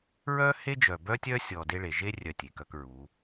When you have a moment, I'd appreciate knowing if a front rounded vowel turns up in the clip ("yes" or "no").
yes